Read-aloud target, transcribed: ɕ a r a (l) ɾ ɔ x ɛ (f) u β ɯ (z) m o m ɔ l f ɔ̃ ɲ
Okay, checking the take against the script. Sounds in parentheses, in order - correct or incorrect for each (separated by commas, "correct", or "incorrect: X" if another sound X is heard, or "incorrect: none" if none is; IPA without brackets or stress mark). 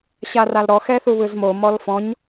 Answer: correct, incorrect: θ, correct